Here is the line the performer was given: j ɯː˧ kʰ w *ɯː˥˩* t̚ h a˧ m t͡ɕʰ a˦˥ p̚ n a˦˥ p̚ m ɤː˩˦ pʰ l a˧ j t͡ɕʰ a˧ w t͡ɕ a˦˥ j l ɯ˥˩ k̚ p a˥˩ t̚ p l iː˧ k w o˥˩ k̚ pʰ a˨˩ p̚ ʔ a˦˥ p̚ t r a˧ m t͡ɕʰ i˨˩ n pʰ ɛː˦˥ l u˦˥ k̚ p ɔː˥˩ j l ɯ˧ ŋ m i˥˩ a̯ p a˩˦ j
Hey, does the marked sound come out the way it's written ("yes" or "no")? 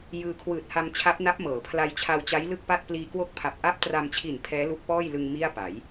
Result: no